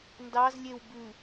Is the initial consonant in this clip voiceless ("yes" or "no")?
no